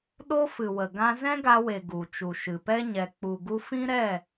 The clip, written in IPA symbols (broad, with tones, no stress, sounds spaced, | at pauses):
ɗ o˦ f ɨ˨ w ə˨ ɡ ã˧ z ɛ̃˦ ɡ a˧ w e˨ ɡ u˨ t͡ʃ u˨ ʃ ɨ˨ p ɛ˦ ɲ ɛ˨ k͡p u˨ ɡ u˧ f ĩ˦ ɾ ɛ˦˨